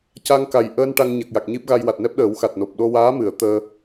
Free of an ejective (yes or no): yes